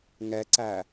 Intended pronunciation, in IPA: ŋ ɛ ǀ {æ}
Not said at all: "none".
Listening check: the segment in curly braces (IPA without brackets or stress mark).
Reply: æ